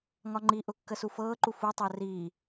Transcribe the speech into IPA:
ŋ ɒ ŋ͡ǃ i ʔ ʊ kː ə s u f ɤː ǃ u f u tˤ əː r iː

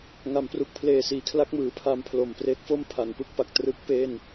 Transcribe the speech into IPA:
ŋ a˩˦ m p r u˨˩ k̚ pʰ l eː˨˩ s iː˩˦ kʰ l a˦˥ k̚ m ɯː˩˦ pʰ a˧ m pʰ l o˨˩ m p r e˦˥ k̚ f o˥˩ m pʰ a˩˦ n p ɯ˥˩ k̚ p a˨˩ k̚ t r ɯ˦˥ k̚ p eː˥˩ n

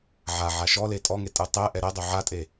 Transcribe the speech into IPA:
ʕ a ʕ a ʃ ɔ l e tʼ ɔ ŋ e tʼ ɯ tˤ ɛ ʔ ɛ ɾ ɛ dˤ o ʕ a tʼ e

